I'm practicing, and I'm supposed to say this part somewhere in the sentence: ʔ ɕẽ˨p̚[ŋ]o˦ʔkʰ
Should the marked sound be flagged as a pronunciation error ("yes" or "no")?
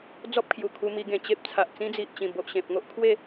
no